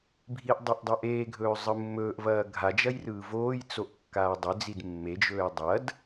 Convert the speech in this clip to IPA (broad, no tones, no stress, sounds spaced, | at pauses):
bʱ i ʔ dˤ o ʔ dˤ ɐ ʔ eː ɡʱ ɵː zˤ ɯ mː ɵː ʔ v ɐː ɡʱ a d͡ʒ ɐ j r ɯː v oː j t͡s o ʔ kː aː dˤ ʏ d͡z i d mː e d͡ʒ ɵː j dˤ ɐ d